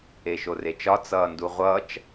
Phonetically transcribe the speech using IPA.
eʃoret͡ʃɒ t͡sʌːnduʁʷʌt͡ʃ

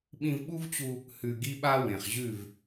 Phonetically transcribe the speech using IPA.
ɓĩ˧vɓu˦vt͡ɕu˧ | hʉ˧ ɡi˦ɓa˦ wẽ˨χʑʉ˦˨v

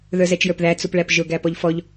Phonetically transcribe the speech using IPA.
ðə˞zɛt͡ʃjə˞pðæ t͡supɭæpʒʊ ɡæpɔʎfɔʎ

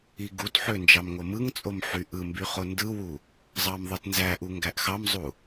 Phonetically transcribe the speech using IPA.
iɡutħø nd͡ʒɑmŋomɯŋt͡sʼom ħyʔɯmby χondɯwu | zˤɑmðˤɯtnzæʔu ŋɡæʔxɑmzˤu

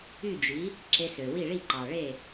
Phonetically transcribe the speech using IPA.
y˥˩d͡ʒi˩˥ | ǁe˧sø˩wi˥˩ ɭi˥˩ǃɑ˩ɭe˥˩

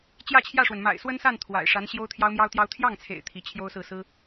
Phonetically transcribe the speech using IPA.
t͡ɕjä˥˧t͡ɕʰjä˥˩ʂwə˩n ma̰˨˩ɪ̯swə˥nsa˥˩n t̪ʰwa̰˨˩ɪ̯ʂa˧˥n ɕjo˥ʊ̯ t̪ʰjɑ˥ʊ̯mjɑ˥ʊ̯t̪jɑ˥ʊ̯ t̪ʰjɑ˥˩ŋt͡sʰḛ˨˩ɪ̯ t̪ʰi˧˥t͡ɕʰjo˥ʊ̯sɹ̩˥˩ sɹ̩˥

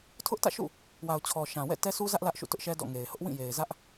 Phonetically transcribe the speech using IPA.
tʰʊ˦ʔtä̰˦˨ʃṵ˦˨ | wa˨ʊ̯t͡ɕʰɔ˨ ʃã˨ wɛ̰˦˨tɛ˦su˦zä˦ʔ lä˦ʔʃṵ˦˨tʊ˦ʔʃɛ˦ dɔ̰˦˨ŋe˨ɪ̯ hʊ˦ʔwĩ˦˨ je˨ɪ̯zä˦ʔ

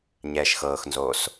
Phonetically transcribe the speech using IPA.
ɲɛːʃxɤːxnzoːs

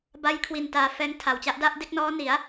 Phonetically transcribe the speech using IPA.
ba˦˥jkʰwi˨˩n taː˧fɛː˦˥ŋtʰa˨˩wt͡ɕa˦˥ʔ da˥˩ʔde˥˩k̚nɔː˦˥ni˩˦a̯

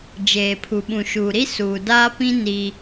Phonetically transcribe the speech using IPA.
d͡ʒeː˨pʰu˨ ɓũ˨ʃuː˨ɾi˦ suː˨daː˦pĩ˦ ni˦

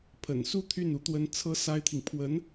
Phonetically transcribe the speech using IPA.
pʰə̰˨˩nsu˥˧ t̪ʰy˥˩n u˥t̪wə˥n t͡sʰɤ˥ sa˥ɪ̯t̪ʰi˨ŋ pʰwə˧˥n

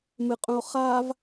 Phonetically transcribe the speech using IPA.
mɨqʼũo̯ χav

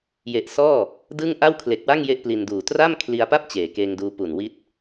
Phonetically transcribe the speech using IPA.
je˨˩ʔsɔː˥˩ | dɯ˥˩ŋ ʔa˥˩wkʰle˨˩k̚wa˥˩ŋ je˥˩ʔpli˧nduː˨˩ tra˥˩m kʰli˧a̯pa˥˩p̚ t͡ɕeː˩˦keː˧ŋduː˧pu˨˩n wi˦˥t̚

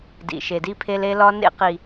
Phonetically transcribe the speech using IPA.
dḭ˨ʃe˨di˦pʰe˦l e˦lɒ˦nḛ˦qi˨

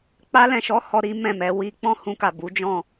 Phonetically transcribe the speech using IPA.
k͡pa˧lɛ̃˨ʃɔ˨˦ hɔ˧ɾi˦ mɛ̃˦˨mɛ˨˦ wi˧k͡pɔ̃˦hũ˧ka˨ bu˨˦d͡ʒɔ̃˦˨

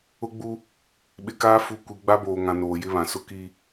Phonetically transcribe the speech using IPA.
ʊ˦ɡ͡bu˦ | ɓɪ˨kaː˦ fu˦ kʷi˨ ɡ͡ba˦boː˨ŋã˨ noː˨jɪ˦βã˨ sʊ˦ki˦

